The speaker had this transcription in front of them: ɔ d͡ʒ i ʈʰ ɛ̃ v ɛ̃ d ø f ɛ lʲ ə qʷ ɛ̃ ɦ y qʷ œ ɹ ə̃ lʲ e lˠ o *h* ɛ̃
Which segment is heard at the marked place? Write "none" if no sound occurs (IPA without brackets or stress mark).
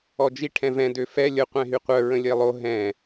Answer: ɦ